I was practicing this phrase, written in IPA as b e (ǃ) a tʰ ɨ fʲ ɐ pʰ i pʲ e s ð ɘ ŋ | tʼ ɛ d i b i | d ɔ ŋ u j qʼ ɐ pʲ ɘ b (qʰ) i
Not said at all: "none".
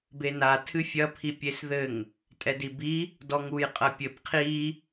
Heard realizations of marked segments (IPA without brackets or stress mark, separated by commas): n, qʰ